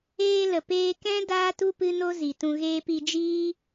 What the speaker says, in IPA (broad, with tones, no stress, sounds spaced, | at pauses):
eː˧ l ə˨ p eː˧ k ɛ̃˦ d aː˧ t u˧ p ɨ˧ n o˦ z i˨ t ũ˧ ɣ eː˧ p i˧ d͡ʒ iː˦